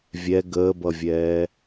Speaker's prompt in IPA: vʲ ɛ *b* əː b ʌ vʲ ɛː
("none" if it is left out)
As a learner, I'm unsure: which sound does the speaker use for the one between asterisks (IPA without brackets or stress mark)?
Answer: ɡ